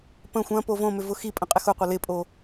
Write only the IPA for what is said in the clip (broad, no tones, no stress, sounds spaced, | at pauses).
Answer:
p ə̃ xʷ ɐ̃ p o v õ m ʏ v ʊ x i pʼ ə̃ qʼ ɪ x ʊ qʷ ɐ l ɪ pʼ o